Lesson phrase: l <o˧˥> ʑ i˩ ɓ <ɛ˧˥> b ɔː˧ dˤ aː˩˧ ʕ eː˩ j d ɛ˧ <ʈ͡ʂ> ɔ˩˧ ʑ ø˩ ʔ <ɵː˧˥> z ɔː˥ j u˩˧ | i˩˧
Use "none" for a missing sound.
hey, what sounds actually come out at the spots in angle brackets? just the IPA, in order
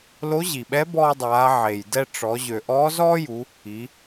o˧˥, ɛ˧˥, ʈ͡ʂ, ɔː˧˥

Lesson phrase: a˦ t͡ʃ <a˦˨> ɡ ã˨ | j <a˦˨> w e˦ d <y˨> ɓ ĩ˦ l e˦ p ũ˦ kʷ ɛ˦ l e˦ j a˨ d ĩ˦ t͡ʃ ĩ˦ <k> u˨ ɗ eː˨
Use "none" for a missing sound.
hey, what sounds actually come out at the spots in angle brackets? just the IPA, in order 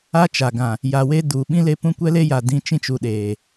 a˨, a˨, u˨, t͡ʃ

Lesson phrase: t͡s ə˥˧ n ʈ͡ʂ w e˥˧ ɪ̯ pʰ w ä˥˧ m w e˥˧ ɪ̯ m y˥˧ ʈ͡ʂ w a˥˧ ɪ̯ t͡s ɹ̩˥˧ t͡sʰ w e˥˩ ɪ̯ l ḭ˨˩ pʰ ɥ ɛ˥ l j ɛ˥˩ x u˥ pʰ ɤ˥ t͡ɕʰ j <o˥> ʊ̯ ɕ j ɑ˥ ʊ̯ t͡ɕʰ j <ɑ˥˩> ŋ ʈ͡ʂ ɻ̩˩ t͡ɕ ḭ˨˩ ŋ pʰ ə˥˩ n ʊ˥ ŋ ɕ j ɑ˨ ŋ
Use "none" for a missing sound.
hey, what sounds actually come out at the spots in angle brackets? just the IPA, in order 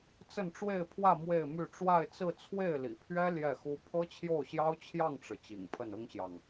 o˥˩, ɑ˥˩

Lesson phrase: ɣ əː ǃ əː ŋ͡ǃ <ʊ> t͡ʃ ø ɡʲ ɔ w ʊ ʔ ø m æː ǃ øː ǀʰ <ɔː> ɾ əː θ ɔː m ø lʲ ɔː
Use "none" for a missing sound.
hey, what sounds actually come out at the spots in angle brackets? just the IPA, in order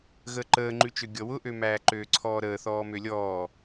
ʉ, ɔː

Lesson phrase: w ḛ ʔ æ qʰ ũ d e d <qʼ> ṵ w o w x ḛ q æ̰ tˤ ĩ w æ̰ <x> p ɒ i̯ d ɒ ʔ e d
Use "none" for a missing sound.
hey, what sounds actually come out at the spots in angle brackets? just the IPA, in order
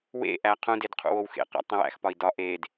qʰ, x

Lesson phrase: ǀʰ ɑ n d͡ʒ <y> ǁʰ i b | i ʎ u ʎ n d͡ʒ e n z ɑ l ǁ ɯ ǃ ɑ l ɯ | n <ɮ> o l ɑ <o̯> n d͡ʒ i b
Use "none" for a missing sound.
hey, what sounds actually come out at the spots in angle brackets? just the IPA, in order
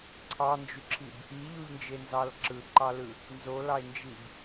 y, z, e̯

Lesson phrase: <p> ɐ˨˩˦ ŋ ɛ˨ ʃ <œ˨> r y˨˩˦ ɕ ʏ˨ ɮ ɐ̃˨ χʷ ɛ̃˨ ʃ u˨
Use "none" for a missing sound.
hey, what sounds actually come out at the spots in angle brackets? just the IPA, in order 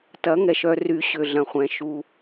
t, œ˨

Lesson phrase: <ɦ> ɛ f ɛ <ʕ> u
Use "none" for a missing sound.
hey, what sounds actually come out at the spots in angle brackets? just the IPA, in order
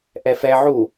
ʔ, ʕ

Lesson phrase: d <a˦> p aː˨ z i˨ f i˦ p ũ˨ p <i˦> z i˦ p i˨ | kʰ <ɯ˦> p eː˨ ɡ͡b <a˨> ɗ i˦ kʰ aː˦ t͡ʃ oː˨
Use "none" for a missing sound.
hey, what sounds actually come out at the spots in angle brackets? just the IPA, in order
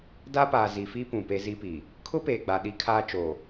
a˦, e˦, ʊ˦, a˨

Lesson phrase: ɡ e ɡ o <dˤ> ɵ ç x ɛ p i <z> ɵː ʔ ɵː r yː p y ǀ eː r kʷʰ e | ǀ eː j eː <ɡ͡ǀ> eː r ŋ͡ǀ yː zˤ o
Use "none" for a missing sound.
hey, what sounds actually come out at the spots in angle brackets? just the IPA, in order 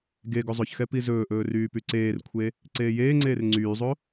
zˤ, z, ŋ͡ǀ

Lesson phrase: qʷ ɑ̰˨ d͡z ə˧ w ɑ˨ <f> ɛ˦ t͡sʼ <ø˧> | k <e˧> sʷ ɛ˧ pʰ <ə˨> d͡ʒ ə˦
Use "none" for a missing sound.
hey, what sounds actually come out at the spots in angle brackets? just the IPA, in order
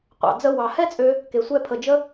h, ø˧, e˨, ə˨

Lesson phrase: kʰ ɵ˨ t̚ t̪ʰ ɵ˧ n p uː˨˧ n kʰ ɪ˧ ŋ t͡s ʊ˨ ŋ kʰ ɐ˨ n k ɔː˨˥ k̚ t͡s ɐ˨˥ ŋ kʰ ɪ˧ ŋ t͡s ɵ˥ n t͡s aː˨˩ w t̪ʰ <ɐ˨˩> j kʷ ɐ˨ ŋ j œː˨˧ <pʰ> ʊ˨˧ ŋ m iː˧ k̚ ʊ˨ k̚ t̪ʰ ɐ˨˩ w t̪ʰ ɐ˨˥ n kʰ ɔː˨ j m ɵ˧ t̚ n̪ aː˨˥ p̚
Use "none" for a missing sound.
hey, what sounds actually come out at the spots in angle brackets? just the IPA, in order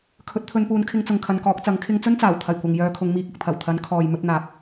ɐ˨˩, kʰ

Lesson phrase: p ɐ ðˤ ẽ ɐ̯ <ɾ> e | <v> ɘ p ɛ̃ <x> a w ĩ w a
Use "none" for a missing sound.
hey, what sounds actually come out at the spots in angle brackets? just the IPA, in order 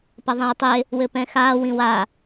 tˤ, w, x

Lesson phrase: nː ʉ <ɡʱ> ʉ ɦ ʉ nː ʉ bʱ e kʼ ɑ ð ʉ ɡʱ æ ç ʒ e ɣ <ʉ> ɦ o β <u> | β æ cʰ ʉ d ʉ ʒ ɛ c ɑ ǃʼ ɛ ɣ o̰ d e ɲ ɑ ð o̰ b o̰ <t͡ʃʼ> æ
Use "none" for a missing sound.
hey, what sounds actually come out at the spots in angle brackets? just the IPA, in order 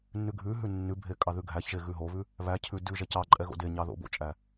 ɡʱ, ʉ, ʉ, t͡ʃʼ

